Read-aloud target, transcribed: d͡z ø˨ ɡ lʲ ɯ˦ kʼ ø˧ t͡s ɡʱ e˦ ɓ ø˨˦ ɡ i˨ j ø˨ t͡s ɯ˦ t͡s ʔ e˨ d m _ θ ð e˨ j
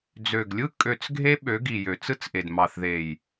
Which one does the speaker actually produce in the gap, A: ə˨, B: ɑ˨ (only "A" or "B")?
B